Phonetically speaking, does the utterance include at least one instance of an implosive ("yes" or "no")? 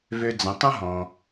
no